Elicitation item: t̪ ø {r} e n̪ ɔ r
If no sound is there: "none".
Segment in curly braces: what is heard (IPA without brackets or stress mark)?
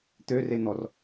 r